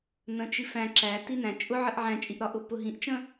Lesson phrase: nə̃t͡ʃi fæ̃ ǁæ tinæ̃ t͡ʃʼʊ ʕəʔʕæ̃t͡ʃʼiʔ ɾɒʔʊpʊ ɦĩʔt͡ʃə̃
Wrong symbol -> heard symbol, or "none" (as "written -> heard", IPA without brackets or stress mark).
none